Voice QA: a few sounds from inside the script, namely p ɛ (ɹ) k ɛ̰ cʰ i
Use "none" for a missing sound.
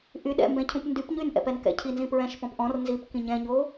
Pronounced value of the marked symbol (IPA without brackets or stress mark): n